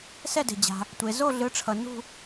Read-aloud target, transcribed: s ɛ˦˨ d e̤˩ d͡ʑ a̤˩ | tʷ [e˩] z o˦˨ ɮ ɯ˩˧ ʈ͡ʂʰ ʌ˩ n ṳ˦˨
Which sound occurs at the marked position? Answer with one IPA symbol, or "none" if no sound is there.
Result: e˩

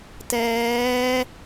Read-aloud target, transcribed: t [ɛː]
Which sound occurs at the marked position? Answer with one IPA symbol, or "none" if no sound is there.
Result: ɛː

